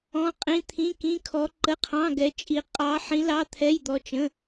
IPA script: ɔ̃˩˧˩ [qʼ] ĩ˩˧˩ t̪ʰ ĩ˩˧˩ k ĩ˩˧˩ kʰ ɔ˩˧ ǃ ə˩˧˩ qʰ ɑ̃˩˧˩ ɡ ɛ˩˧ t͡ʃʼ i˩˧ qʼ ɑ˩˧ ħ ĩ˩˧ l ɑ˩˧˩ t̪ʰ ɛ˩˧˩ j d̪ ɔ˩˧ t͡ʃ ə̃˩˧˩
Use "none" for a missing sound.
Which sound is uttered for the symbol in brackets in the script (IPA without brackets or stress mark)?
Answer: qʼ